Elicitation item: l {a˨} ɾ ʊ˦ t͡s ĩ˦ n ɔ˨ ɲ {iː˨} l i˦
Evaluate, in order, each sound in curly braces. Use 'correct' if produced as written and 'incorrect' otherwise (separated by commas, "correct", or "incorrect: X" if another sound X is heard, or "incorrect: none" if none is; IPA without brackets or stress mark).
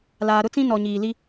incorrect: aː˨, correct